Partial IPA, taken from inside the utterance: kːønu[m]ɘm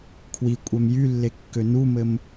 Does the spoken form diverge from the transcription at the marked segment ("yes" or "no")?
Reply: no